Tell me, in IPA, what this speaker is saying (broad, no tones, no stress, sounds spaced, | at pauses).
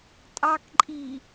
tʼ ɑ k ǃʼ i